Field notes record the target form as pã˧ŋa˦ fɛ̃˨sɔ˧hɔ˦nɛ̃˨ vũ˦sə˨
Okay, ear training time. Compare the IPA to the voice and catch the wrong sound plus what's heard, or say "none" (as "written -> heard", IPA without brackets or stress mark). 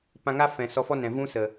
h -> f